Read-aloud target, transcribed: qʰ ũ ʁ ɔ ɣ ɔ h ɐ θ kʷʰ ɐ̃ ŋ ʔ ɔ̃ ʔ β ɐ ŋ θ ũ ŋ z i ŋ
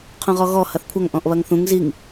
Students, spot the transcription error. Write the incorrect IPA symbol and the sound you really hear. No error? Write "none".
ɐ̃ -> ɐ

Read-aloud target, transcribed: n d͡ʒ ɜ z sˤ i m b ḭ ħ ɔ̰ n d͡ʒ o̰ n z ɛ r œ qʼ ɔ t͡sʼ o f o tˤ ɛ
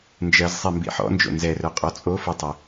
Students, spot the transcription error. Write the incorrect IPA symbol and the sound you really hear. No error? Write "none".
none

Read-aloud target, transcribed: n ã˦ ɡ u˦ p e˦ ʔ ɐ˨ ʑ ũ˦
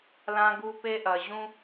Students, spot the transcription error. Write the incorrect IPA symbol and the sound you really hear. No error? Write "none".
n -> l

